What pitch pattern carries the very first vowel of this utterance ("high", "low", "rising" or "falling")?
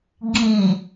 low